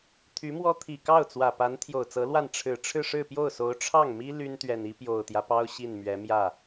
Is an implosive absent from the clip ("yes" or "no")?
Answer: yes